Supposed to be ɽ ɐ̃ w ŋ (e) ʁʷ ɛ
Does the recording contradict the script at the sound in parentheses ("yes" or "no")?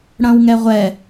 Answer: yes